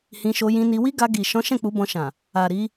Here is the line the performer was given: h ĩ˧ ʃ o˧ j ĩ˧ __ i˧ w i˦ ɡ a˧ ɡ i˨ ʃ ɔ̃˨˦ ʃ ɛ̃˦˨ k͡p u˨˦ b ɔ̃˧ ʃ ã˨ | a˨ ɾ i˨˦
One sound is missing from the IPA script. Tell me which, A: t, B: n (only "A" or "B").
B